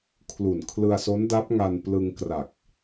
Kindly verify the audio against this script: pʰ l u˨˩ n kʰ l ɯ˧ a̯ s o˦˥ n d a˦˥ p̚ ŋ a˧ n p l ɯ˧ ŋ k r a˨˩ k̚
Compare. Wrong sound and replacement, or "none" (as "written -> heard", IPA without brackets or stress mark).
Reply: pʰ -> kʰ